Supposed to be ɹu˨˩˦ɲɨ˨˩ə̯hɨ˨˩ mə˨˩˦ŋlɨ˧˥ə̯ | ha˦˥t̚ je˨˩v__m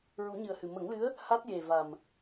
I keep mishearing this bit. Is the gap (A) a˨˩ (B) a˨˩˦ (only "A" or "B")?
A